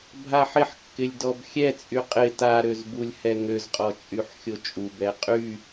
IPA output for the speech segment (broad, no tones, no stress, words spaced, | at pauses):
bʱaħɪħkːɪlʲ dɔbxʲɛt͡sʼy qʼɪ taɾøzbulʲhɛ ŋøzqʼɔt͡ʃʼyħ xʲot͡ʃʼubɛ qʼy